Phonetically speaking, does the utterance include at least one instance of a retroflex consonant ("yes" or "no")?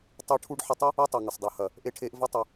yes